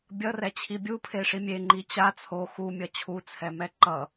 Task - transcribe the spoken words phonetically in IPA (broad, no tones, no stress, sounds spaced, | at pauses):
bʲ ʌ r ɛ t͡ɕʰ i bʲ u pʰ e ʂ i mʲ e ŋ͡ǃ i t͡ɕ a t͡sʰ o x u mʲ ʌ t͡ɕʰ u t͡sʰ ɛ m ɛ ǃ ʌ